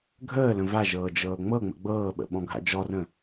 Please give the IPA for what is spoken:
ɡʱ əː l ə̃ v a ʒ ɤː d͡ʒ ɤː ŋ͡m ɤ ŋ͡m ə̰ ɡ͡b ɤː ɓ ə̰ ɓ ɔ̃ ɡʱ a̰ d͡ʒ ɔ r ə̃

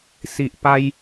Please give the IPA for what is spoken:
s i˨ ʔ p a˧ j

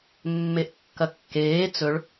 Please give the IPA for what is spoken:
mː e ʔ kː ɐ kː eː t͡s ɵ ɭ

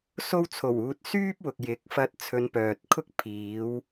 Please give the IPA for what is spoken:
s o˧ w t͡sʰ o˨˩ w uː˨ t̚ s yː˥ p̚ w ʊ˨ k̚ j ɪ˨˥ k̚ f ɐ˧ t̚ t͡sʰ ɵ˨˧ n p œː˨ t̚ kʰ ʊ˥ k̚ pʰ iː˨˧ w

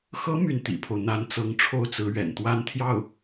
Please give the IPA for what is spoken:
x ɤ˧˥ m y˥˩ n t̪ ḭ˨˩ pʰ o˦ ʊ̯ n̪ a˧˥ n t͡s ɤ˧˥ ŋ ʈ͡ʂʰ o˥˩ ʊ̯ t͡s ɹ̩˧˥ ɥ ɛ̰˨˩ n t̪ w a˥ n t̪ʰ j ɑ˥˩ ʊ̯

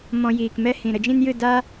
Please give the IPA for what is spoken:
m ɔ̃˧ j iː˨ k m ɛ˦ h ĩ˨ ɾ ə˧ d͡ʒ ĩ˦ n j ɨ˦˨ d a˦

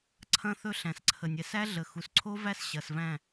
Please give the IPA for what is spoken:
ǀʰ ɐ̃˦ θ ɵ˦ ɬ æ̃˨ s ǀʰ ə˨ nʲ ɛ˨ s æ˦ ɮ ə˨ x u˨ s ǀʰ o˦ v æ˦ s ɕ ɐ˨ s v æ̃˦˨

